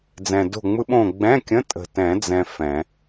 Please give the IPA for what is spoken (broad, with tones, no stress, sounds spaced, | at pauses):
d͡z ɛ̃˨ d o̤˦˨ ŋ͡m ɯ˦˥ ɓ õ˦˨ ɡ͡b ɛ̃˧˥˧ kʲ ə̃˧˥˧ tʼ ə̤˨ t ɛ̃˨˩˦ d͡z ɛ̃˨ f ɛ̃˨˩˦